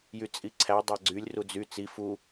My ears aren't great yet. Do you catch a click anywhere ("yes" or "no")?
yes